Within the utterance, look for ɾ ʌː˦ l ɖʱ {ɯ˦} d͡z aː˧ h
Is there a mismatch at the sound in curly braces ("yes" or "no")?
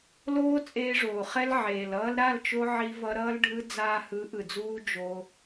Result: no